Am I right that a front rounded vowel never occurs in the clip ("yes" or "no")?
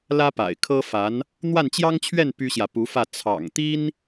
no